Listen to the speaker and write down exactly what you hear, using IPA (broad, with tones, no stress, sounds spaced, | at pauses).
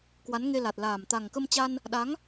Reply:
k w a˨˦ n ŋ e˧ l a˨˩ t̚ l aː˨˩ m t̪ a˨˩ ŋ k ə˧ m t͡ɕ a˧ n | ɗ a˨˦ ŋ